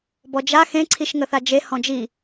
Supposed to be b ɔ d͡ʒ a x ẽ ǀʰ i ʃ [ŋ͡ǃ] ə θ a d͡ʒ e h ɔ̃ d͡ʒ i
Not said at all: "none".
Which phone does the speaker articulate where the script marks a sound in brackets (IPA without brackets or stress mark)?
ŋ